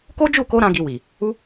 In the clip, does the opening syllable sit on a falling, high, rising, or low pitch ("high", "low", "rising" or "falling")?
high